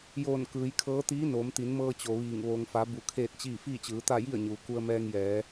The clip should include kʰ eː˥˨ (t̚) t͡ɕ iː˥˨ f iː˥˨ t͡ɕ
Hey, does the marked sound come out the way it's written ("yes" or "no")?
yes